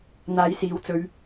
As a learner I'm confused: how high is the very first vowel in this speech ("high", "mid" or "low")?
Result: low